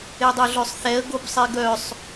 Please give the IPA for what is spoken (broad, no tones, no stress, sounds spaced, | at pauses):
e dˤ o ɮ œ sˤ θ ɛ ə̯ ɡ o b sˤ e ɡ œ sˤ